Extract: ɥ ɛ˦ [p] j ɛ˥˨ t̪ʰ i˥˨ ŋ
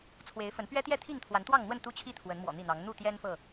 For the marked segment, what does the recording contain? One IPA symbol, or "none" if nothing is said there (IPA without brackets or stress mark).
t̪